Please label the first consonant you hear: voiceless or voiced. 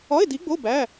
voiced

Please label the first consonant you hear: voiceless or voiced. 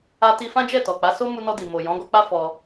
voiceless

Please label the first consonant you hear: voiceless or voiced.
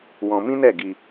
voiced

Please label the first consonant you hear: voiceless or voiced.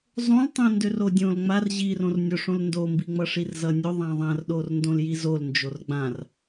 voiced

